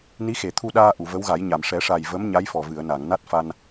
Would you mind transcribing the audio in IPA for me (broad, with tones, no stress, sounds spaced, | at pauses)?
n i˧˥ x e˨˩˨ t̪ʰ u˧ ɗ aː˧ ʔ u˨˩˨ v ə˧˥ w ɣ a˨˩˦ j ɲ a˨˩˨ m ʂ ɛ˨˩˦ ʂ a˨˩ j v ə˧˥ m ɲ a˧˥ j f ɔ˨˩ v ɨ˨˩˨ ə̯ n a˨˩˨ ŋ n a˦˥ t̚ f a˧ n